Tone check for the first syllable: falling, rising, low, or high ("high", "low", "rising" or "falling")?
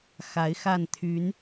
rising